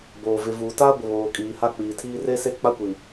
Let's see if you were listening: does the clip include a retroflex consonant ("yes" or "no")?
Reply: no